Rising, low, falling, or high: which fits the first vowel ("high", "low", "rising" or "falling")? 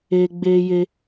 high